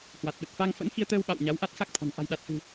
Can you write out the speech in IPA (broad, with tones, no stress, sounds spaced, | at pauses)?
h w a˨˩ t̚ ɗ ə˨˩ t̚ f a˧ ŋ f ə̰˧˥ n x i˧ ə̯ t̪ əː˧ w ɓ a̰˧˨ w ɲ a˨˦ w ʔ a˦˥ t̚ x a˦˥ k̚ t̪ʰ ɔ̤˨˩ n ʔ a̤˨˩ j ɗ a˨˩ t̚ h ɨ̤˨˩